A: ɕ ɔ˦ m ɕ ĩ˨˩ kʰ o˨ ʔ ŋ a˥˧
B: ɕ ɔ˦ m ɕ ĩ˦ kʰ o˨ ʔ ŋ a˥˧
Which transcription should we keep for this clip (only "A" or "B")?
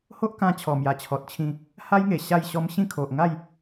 B